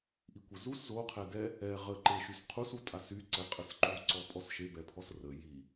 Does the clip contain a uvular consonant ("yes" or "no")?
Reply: yes